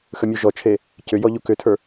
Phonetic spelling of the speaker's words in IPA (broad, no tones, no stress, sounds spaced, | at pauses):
x ə mʲ u ʒ ɔ t͡ʃʰ e | c ʏ j ɔ ʎ u k ʏ tʰ ə˞